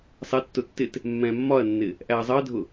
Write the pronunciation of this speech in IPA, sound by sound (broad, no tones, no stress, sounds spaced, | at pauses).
sˤ ɛ tː ʊ tː ɪ t | mː ɛ̃ mː ɒ ɐ̯ nː ɪ | ʔ æ ɐ̯ zˤ ɜ dʱ ʊ